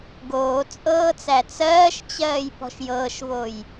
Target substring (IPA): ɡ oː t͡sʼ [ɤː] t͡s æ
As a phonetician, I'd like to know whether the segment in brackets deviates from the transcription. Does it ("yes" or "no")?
no